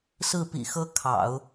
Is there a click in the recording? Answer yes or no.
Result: no